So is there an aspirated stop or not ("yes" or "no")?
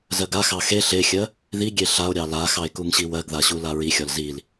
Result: no